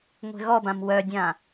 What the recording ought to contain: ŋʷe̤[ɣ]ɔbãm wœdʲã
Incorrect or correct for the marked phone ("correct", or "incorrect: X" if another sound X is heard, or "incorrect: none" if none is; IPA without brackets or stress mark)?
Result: correct